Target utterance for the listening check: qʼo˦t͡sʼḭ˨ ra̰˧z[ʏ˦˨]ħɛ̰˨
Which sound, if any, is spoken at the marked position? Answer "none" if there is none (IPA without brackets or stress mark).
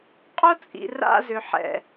ʏ˨